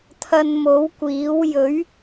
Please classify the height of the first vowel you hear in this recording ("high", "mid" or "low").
low